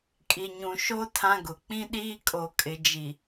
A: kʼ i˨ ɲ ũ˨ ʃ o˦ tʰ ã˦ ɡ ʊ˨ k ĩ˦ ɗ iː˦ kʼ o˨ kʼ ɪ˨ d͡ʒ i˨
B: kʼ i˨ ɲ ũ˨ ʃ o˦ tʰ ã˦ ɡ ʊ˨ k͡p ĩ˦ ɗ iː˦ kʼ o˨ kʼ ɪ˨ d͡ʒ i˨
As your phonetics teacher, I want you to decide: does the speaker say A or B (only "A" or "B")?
B